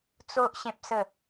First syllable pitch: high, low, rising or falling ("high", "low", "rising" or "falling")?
high